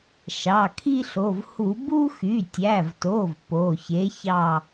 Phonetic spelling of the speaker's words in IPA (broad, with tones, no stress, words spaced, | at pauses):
ʃɑ˩˧˩kʰi˦ɬo˩˧˩vhu˧˩˧ bu˦xy˩˧˩tʲæ˩˧˩vto˩˧˩v po˩˧˩çe˨˥ çɑ˦˨